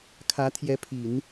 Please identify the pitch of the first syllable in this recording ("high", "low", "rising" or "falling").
rising